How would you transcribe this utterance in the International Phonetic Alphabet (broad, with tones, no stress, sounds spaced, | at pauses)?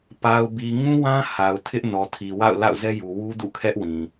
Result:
p a˨ ʊ̯ b i˨ ŋ ũ˦ w ã˦ h a˨ ʊ̯ tʰ ɪ˦ ʔ n ɔ˨ tʰ i˨ w a̰˦˨ ʊ̯ l a̰˦˨ ʊ̯ z ɛ˦ j u˨ w u˦ d ṵ˦˨ kʰ ɛ˦ ʔ w ĩ˨